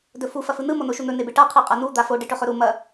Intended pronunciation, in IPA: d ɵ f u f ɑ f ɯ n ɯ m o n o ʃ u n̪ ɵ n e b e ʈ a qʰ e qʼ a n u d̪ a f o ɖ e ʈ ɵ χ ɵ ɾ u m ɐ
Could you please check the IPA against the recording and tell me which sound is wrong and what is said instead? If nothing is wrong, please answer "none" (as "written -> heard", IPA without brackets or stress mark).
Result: ɑ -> ɐ